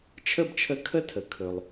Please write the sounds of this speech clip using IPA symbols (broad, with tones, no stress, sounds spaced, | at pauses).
t͡ʃʰ ə˦˨ b t͡ʃʰ ə˨˥ kʰ ə˦˨ tʰ ə˩ kʰ ɵ˩ lˠ